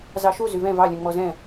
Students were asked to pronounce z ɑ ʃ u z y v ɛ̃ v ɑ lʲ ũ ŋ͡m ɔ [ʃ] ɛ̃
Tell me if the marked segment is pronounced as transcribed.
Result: no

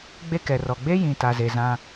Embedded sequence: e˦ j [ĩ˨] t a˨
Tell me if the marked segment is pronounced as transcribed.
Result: yes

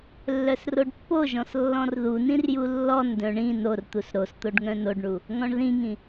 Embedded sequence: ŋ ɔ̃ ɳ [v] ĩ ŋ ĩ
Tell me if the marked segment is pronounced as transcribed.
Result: no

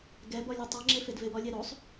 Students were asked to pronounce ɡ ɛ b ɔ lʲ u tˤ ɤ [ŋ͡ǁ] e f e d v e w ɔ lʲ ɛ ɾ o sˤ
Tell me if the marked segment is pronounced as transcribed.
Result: yes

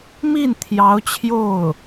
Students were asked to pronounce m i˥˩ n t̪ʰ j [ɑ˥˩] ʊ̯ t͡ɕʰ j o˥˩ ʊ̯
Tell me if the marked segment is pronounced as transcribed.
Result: no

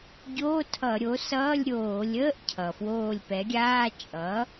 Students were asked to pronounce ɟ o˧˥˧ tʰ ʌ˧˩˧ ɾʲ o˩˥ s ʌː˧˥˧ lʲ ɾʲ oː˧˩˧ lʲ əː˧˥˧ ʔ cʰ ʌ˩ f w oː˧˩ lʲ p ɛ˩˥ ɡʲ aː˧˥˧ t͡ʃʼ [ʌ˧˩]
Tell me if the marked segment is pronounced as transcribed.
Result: no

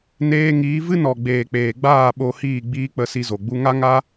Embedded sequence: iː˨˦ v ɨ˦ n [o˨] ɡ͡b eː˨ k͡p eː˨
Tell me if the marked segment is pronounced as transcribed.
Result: no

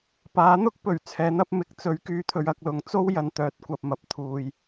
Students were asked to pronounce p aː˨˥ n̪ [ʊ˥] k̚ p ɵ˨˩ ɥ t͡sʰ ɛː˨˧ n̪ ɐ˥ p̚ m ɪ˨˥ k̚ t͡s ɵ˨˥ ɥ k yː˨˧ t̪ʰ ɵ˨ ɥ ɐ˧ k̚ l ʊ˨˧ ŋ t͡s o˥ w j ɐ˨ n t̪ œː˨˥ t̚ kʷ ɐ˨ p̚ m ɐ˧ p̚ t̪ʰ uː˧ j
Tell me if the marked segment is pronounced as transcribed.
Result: yes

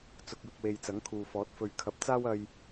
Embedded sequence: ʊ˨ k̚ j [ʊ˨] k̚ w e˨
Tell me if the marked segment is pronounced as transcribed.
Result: yes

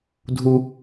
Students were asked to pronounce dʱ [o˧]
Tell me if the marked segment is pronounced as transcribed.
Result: no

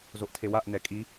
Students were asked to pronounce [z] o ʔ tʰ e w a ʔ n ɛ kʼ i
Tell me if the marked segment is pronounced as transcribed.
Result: yes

